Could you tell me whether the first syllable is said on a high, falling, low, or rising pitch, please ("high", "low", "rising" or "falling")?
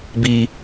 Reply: high